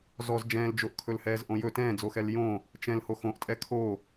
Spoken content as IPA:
z ɔ z d͡ʒ ɛ̃ː l d͡ʒ o ʔ kʰ ɵ l h ɛː z ʔ õ j ɵ t ɛ̃ː d͡z o x ɛ l j õ | t͡ʃ ɛ̃ l h o x õ ʔ tʼ ɛ kʰ o

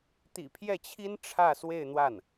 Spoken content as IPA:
t̪ ḭ˨˩ pʰ j ɛ˥˩ t͡ɕʰ i˥ n ʈ͡ʂʰ ä˥˧ s w e˥˧ ɪ̯ n̪ w a˥˩ n

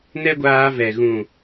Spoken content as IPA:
n ɛ˦ ɡʷ aː˧ v ɛ˨ ɣ ũ˨

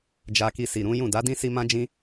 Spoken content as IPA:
d͡ʒ a˧ k i˧ s i˨ ɾ ũ˨˦ j ũ˦˨ d a˨˦ d ĩ˦ s i˧ m ã˦ d͡ʒ ĩ˦

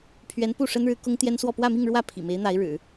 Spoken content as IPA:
pʰ ɥ ɛ˧˥ n p u˥˩ ʂ ə˥ n ɻ ɻ̩˧˥ k ʊ˥ ŋ t̪ j ɛ˥ n s w ɔ˥˧ p w ä˥˧ m i˥˧ ŋ ɻ w ä˥˩ pʰ ḭ˨˩ m e˧˥ ɪ̯ n̪ a˧˥ ɪ̯ ɻ ɻ̩˨˩˦

